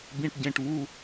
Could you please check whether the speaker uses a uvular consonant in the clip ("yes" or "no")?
no